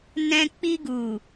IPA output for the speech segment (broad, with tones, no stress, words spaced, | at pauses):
nɛ̃˧k͡pi˧ɡu˨